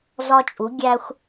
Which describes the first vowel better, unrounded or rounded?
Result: rounded